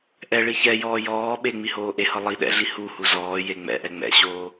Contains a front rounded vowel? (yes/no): no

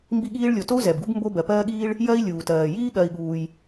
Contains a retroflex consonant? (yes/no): yes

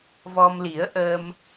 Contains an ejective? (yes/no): no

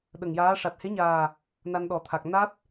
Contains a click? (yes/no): no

